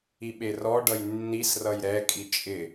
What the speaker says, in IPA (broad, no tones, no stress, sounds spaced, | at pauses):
i ɓ e r ɔ ɖ ʌ j nː i s r ʌ j ɾ ɛ kʼ i t͡ʃʼ ɪ